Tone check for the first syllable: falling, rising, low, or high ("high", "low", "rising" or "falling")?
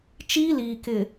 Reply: high